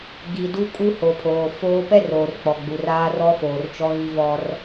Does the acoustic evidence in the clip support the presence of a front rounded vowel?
no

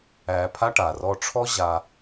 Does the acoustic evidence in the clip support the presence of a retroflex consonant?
yes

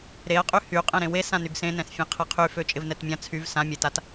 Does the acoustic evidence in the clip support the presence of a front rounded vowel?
yes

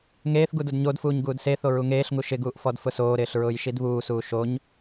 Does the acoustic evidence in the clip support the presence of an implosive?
no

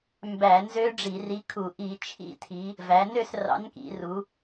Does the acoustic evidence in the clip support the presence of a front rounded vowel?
yes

